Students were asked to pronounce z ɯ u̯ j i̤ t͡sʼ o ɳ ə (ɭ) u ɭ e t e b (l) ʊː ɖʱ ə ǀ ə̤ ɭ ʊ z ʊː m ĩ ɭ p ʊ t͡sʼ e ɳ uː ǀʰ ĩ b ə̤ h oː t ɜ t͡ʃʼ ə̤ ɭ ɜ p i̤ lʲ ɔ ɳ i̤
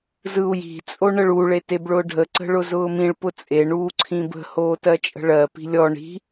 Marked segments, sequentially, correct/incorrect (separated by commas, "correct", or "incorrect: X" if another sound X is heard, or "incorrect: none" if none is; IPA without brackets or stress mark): correct, incorrect: ɭ